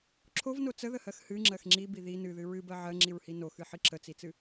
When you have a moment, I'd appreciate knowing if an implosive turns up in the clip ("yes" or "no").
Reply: no